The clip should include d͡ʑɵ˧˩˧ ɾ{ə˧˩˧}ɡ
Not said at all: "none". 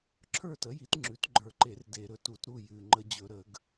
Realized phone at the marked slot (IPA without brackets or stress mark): ə˧˩˧